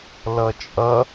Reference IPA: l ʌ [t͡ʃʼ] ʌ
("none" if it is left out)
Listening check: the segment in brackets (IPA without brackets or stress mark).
t͡ʃʼ